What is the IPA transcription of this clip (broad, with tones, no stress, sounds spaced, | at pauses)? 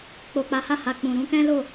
k͡p o˨ k͡p a˨˦ h a˦˨ h a˨ k͡p ũ˨ ɾ ũ˧ k ɛ̃˦ l o˦˨